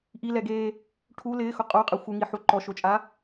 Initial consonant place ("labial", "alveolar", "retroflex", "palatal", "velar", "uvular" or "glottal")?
glottal